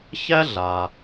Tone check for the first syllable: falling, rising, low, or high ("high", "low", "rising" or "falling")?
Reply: high